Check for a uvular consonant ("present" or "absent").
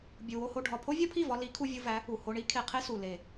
present